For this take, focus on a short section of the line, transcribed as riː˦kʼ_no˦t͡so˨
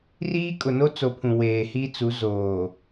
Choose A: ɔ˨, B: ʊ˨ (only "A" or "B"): B